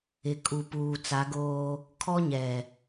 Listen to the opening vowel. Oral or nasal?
oral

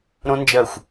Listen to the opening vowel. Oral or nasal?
nasal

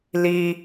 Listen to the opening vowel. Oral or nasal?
oral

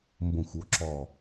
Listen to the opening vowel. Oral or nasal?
nasal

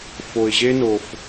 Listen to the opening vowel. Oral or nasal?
oral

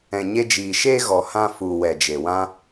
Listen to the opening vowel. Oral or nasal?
nasal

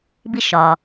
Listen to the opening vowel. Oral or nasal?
oral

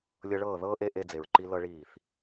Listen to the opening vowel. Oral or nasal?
oral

